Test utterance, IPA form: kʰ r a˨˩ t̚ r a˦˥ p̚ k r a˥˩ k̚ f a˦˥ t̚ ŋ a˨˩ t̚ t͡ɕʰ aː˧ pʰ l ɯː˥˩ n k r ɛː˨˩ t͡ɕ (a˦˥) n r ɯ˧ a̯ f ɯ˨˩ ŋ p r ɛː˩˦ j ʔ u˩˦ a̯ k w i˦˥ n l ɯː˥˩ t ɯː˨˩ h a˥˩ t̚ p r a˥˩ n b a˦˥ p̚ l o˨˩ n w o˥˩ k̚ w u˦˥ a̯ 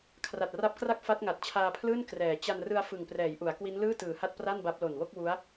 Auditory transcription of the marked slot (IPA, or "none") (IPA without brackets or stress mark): a˧